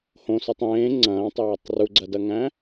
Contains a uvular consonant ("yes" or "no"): no